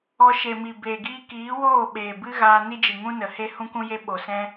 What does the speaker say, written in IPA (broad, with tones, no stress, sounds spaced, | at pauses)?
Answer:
ɔ˧ ʃ e˨ m i˨ b eː˨ ɡ iː˦ k iː˨˦ w oː˦˨ ɓ eː˨ b ɨ˦ ɣ aː˧ n i˦ d͡ʒ ɨ˨ ŋ ũ˦ n ə˨ h e˦ h ũ˦ k ũ˦ j e˦ ɓ o˨ s ɛ̃˦